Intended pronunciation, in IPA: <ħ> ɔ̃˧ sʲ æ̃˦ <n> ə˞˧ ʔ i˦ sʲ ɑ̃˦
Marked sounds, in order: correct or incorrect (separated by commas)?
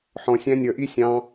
correct, incorrect